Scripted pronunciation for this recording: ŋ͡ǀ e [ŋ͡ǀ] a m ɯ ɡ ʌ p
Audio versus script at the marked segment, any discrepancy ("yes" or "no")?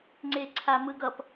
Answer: yes